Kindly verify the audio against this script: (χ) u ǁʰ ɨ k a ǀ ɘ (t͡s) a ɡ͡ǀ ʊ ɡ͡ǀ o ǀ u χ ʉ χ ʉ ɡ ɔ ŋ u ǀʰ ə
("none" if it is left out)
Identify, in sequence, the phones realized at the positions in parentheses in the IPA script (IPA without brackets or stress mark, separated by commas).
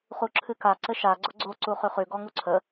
χ, ʃ